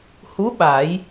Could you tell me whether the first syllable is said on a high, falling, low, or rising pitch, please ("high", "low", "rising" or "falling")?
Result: rising